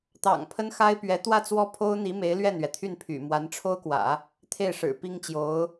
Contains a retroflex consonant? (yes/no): yes